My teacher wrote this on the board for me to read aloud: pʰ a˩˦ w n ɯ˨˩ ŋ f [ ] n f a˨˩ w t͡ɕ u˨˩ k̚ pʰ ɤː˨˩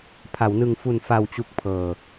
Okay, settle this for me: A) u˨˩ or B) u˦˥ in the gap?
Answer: A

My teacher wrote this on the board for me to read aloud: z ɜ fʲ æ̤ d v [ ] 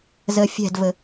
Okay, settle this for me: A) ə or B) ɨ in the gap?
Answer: A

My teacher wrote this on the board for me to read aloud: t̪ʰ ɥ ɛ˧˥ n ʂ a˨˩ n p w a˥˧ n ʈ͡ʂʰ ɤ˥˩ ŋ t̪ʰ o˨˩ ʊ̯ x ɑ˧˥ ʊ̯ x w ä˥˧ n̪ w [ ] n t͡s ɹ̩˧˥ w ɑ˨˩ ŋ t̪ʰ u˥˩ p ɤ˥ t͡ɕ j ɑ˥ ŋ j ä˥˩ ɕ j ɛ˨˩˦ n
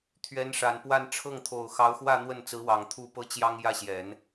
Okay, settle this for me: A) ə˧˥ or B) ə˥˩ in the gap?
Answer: B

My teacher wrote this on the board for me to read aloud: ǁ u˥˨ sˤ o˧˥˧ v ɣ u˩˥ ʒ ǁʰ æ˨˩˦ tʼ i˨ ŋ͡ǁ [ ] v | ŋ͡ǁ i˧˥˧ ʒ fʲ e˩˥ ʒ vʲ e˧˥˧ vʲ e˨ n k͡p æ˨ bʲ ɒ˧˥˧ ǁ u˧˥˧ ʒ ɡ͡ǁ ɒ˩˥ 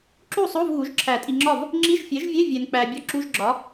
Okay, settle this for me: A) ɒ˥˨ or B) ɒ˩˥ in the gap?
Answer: A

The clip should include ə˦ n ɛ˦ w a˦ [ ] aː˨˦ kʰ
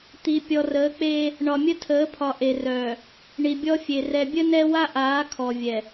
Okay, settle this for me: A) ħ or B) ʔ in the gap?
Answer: B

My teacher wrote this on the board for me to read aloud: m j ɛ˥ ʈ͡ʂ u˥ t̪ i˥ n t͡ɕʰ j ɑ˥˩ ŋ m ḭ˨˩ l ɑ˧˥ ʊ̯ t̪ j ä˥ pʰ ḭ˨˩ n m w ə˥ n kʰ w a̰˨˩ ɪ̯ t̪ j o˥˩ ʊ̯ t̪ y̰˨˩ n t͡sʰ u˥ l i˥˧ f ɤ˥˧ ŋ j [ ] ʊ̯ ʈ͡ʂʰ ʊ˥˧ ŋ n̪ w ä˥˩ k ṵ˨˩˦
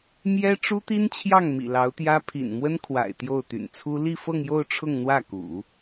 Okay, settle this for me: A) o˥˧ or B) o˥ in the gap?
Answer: A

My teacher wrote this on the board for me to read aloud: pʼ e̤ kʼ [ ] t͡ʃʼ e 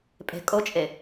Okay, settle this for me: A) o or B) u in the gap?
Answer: A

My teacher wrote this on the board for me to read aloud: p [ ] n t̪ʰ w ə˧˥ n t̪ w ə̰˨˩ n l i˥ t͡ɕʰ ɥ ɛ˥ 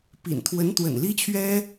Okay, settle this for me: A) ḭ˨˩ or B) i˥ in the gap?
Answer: A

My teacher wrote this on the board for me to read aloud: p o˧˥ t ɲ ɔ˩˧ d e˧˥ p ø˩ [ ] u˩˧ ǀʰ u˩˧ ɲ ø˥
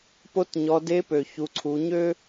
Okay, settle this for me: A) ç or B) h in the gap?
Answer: A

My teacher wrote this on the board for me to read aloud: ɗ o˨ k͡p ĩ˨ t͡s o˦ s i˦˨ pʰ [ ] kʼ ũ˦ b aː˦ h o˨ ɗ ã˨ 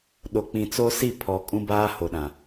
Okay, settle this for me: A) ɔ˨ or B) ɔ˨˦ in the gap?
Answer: A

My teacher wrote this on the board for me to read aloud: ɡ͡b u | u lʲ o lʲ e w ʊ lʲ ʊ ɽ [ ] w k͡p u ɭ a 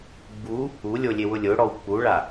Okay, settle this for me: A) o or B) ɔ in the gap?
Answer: B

